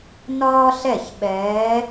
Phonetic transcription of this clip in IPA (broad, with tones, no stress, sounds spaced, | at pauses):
n ɒː˥ ɬ ɛ˥˩ ç ɓ ɛː˧˥